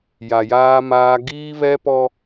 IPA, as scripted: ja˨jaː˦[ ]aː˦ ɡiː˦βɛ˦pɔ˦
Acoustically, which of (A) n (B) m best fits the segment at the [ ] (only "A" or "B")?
B